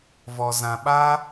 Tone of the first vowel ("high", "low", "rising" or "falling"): low